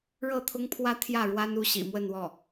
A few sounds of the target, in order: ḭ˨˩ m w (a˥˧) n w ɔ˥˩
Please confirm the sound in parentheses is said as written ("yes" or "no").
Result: no